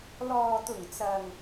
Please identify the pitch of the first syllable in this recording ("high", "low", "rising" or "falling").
low